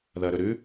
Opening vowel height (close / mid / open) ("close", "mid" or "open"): open